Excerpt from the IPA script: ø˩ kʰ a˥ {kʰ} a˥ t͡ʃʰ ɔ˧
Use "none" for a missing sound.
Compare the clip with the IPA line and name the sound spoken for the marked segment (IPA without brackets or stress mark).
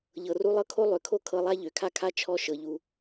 kʰ